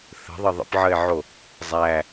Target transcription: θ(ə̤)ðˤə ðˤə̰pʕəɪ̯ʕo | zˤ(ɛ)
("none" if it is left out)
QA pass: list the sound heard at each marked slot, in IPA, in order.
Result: ə̤, æ

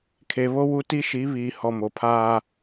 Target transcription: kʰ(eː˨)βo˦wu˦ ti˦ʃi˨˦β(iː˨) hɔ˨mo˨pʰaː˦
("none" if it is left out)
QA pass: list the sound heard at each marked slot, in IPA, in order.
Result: e˨, iː˨

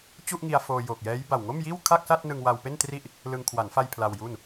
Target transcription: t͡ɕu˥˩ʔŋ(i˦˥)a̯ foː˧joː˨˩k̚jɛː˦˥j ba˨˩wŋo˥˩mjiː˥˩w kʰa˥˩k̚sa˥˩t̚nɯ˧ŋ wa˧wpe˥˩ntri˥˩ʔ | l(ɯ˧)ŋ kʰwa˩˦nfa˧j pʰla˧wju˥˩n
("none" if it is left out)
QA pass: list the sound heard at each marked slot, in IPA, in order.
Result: i˧, ɯ˧

